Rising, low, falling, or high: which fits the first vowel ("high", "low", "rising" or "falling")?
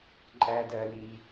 low